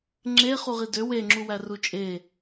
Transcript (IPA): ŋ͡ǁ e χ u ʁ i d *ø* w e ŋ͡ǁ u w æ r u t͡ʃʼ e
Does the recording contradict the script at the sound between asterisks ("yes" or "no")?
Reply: no